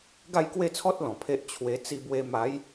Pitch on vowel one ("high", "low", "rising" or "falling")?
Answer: falling